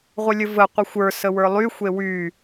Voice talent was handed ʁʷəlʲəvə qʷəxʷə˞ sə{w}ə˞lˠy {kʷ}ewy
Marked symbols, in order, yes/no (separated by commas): yes, no